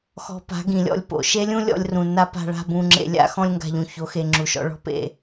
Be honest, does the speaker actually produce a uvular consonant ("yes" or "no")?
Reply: no